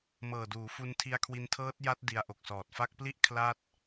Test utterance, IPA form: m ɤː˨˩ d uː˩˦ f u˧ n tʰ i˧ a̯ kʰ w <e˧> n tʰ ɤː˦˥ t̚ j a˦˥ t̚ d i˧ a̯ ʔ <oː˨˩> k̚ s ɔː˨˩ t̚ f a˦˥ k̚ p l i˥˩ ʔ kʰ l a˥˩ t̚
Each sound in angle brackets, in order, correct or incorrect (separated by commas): incorrect, incorrect